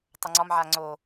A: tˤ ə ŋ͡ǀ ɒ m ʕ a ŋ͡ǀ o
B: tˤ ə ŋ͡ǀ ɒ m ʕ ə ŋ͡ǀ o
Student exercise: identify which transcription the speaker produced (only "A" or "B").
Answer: A